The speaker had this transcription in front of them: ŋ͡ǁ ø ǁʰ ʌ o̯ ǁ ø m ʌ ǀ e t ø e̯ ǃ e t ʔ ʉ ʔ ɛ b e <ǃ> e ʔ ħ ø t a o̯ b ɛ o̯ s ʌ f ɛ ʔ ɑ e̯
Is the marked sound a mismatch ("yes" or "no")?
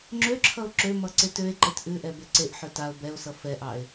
yes